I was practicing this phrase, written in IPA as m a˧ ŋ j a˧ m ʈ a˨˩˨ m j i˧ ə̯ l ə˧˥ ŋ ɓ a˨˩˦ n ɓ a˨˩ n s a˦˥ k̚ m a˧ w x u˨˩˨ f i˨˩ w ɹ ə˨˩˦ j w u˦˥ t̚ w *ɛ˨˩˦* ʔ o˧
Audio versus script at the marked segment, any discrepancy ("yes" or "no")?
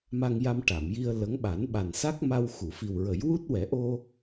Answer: no